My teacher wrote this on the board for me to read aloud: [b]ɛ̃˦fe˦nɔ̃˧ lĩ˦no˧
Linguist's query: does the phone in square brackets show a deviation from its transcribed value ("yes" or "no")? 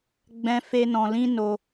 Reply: yes